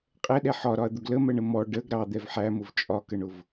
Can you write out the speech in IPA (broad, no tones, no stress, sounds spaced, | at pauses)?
qʼ ɛ ɗ ɛ ħ ɒ ɾ ɒ ɐ̯ d̪ ʊ ɡ l ə m ɜ ɳ ə m ɔ ɖ ə ɡ ɾ ɑ d̪ ɛ v ħ æ m ʊ v t͡ʃʼ ɒ k ə ɳ ʊ v